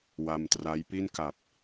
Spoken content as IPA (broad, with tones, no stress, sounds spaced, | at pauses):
w a˧ m t r a˦˥ j p i˥˩ n k a˨˩ p̚